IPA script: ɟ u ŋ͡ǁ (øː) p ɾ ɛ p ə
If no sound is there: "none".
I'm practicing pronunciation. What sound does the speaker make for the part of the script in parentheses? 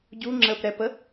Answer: əː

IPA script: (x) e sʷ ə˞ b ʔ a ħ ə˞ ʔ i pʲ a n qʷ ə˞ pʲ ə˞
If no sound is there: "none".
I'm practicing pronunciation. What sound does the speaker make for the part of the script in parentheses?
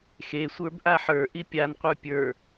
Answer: x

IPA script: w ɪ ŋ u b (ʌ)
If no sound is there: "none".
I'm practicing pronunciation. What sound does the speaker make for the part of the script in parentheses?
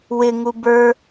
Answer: ə˞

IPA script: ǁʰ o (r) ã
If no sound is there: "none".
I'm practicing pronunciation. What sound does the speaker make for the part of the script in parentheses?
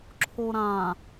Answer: ɾ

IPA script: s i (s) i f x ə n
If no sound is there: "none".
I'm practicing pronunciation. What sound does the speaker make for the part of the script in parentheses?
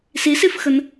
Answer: s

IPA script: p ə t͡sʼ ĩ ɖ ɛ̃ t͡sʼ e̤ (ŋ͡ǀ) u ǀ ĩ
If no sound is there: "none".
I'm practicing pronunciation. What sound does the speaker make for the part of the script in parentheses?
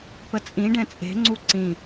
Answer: ŋ͡ǀ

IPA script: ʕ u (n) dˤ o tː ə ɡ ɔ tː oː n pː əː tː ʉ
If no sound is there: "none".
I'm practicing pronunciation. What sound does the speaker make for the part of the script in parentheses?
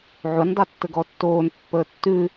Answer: n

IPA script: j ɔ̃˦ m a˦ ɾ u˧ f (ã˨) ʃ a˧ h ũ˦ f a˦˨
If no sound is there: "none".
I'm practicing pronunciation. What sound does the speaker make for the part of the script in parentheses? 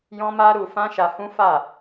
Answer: ã˦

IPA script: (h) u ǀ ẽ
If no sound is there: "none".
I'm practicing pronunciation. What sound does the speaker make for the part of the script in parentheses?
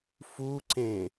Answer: f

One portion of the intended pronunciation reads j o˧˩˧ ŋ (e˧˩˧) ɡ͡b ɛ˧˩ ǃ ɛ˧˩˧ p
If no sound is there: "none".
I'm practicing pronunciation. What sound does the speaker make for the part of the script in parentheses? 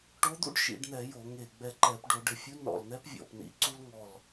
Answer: e˧˩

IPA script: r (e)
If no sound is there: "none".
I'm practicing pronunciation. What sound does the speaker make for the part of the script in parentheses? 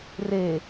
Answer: e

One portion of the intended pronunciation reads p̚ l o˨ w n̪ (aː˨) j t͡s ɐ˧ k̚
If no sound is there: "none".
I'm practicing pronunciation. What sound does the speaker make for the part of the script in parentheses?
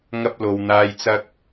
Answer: aː˨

